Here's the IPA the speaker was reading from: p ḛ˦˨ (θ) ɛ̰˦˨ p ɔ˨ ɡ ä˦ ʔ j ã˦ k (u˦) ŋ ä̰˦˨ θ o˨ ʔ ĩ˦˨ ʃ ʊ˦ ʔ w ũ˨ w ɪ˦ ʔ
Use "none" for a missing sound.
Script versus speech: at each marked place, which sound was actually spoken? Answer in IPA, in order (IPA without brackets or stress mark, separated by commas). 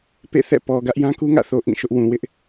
θ, u˦